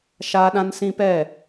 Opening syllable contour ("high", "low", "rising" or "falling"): high